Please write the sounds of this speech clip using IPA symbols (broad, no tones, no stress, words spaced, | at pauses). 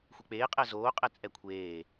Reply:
xʷek͡peː qʼɛzoː qʼɛt͡sʼɛkʷʰeː